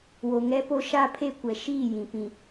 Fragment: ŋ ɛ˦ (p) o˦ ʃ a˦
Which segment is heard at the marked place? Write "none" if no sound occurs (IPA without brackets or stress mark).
p